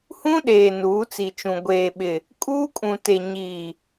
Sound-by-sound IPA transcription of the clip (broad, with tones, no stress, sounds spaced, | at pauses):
h ũ˦ ɗ eː˨ n uː˨˦ t͡s i˨ t͡ʃ ũ˨ ɡʷ eː˨ ɓ ɪ˨ | kʼ uː˦ kʼ ũ˨ t e˨ ɲ iː˨